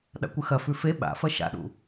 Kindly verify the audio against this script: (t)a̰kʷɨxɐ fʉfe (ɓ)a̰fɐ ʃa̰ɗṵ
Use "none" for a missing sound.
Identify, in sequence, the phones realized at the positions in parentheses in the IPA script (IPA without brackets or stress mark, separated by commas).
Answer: ɗ, ɓ